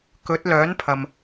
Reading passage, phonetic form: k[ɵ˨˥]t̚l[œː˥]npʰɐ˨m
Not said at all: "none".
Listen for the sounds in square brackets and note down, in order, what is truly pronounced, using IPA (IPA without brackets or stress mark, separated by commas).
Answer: ɵ˨˥, œː˨˥